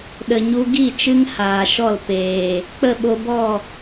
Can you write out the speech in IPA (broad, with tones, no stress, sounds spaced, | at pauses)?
ɗ ə˨ ɲ u˧ ɡ i˦˨ t͡ʃ ɨ˦ ŋ h aː˨ ʃ ɔ˦˨ l p eː˨ | k͡p ə˦˨ ɓ o˧ b ɔ˦˨